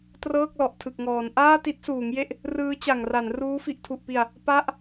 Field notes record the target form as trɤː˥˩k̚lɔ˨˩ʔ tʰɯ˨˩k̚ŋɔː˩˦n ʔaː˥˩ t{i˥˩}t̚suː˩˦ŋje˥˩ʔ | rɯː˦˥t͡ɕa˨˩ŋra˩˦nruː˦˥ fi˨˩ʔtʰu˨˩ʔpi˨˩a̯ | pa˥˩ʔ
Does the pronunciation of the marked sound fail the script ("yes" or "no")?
yes